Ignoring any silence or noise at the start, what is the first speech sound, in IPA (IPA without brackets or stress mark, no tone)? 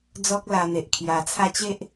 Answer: d͡z